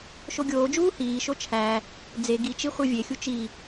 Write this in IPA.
ʃ o ɡʲ oː d͡ʒ uː h iː ʃ o t͡ʃʰ æ | d͡z e ɡ i t͡ʃ i χʷ e vʲ e xʲ u t͡ʃ i

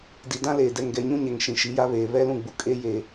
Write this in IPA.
d i˨ d ã˦ l eː˨ d ɛ˨ ŋ ɡ ɛ˨ ɲ ũ˦ ɲ ɛ˨ ŋ ʃ ĩ˨ ʃ i˨˦ j a˦ β eː˨ β ɛ˦ l ũ˦˨ ɡ͡b u˨ kʼ e˦ j e˨

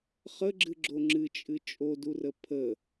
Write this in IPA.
χ ə ɡ͡ǁ ɨ ɡ͡ǁ o ŋ͡ǁ ɨ t͡ʃʼ ɨ t͡ʃʼ o d u r ə pʰ ə

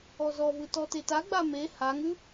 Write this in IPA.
ɔ z ɔ v ɯ t ɔ t e t a ɡ͡b a m e h a ŋ ʉ

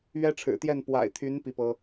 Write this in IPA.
ɥ ɛ˦ ʈ͡ʂʰ ɻ̩˨˩ t̪ j ɛ˥˨ n p w a̰˨˩ ɪ̯ t̪ʰ y˨˦ n p i˦ p ɤ˦

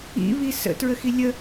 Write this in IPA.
ḭ β i s ə̰ t ɹ ə x i lʲ ə

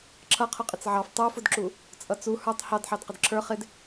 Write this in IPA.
ǁʰ ʌ qʰ ʊ qʼ ɪ t͡s ʕ ɑ f tˤ u f ʊ d ǁ u | t͡sʼ ʌ t͡s u h ə˞ tˤ h ɑ d ħ ɑ d q ɪ d ǁʰ ə˞ χ ɪ d

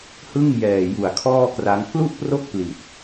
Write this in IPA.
h ɯ˥˩ ŋ j ɛː˨˩ j u˨˩ a̯ kʰ ɔː˥˩ k r a˦˥ ŋ k l u˥˩ ʔ p r o˥˩ k̚ p l i˨˩ t̚

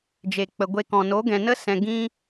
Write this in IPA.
d͡ʒ e˨ k͡p ə˨ ɡʷ e˧ k ɔ̃˨ n o˨˦ ɡ ɛ̃˨ n ə˦ s ɛ̃˨ ɡ ĩ˧

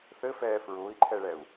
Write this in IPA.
θ ɘ f ɛː f ɹ ʊː i̯ ǃʰ ɛ ɭ ɛ u̯

